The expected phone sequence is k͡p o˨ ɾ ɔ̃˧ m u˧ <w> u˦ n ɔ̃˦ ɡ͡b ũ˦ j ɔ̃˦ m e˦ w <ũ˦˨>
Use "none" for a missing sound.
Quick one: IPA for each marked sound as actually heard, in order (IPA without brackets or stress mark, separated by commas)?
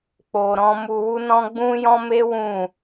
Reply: w, ũ˦˨